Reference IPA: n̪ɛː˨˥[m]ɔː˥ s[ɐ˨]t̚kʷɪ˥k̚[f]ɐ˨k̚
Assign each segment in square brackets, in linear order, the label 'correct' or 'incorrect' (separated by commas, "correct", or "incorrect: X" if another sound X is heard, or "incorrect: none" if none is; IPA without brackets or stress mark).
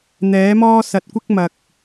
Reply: correct, correct, incorrect: m